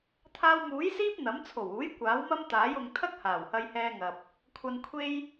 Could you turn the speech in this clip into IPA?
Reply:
t̪ʰaː˧wmuː˨˥jsiː˥p̚ n̪ɐ˨˥m t͡sʰo˨˩wuː˨˥j kʷaː˨˥wmɐ˥mt̪aː˨˥j ʊ˨ŋ t̪ʰɐ˥k̚haː˨˩whɐ˧jhɛː˧ ŋɐ˨p̚ | kʷʰɐ˨nkʷʰe˧j

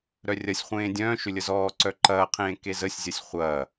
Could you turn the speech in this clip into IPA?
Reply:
ɾœrʲɐsʲχʷẽː dʲœ̃ː ʃʏlʲəzɔːǀœ ǃɐːqʰẽː kezəsʲzʲɐsʲ χʷɐː

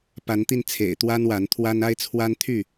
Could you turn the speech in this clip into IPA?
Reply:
pa˨˦nt̪i˧nt͡sʰḛ˨˩ɪ̯ t̪wa˦nwa˨˦nt̪ʰwa˦n a˦ɪ̯t͡sʰwa˦nt̪ʰy˥˨

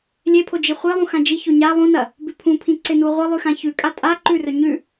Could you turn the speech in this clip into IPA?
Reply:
lʲepʰo d͡ʒiχʷelˠũ xãd͡ʒiço ɲa lˠũnɐ | bʉpʰũpʰĩ ǀenuʁʷɐlˠʉ xãçʉkʼa tʼa ǃʉrɵ ɲʉ

